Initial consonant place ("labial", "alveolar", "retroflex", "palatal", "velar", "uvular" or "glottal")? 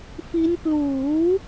labial